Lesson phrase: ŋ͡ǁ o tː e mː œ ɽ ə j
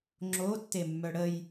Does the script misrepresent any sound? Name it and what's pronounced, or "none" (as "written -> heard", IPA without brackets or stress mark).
none